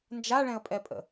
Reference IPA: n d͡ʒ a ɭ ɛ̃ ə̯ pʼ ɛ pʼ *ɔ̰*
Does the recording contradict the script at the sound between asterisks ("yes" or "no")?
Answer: yes